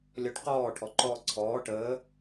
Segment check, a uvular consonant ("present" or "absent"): present